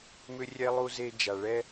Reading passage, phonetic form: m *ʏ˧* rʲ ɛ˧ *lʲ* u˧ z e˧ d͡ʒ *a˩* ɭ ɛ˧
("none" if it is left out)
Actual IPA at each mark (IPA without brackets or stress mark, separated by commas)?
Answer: ʏ˧, lˠ, a˩